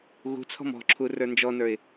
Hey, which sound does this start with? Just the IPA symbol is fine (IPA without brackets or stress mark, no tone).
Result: ɣ